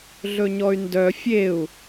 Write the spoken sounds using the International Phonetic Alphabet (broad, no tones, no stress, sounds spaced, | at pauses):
ɮ ɵ ɲ ɔ y̯ n d œ fʲ e u̯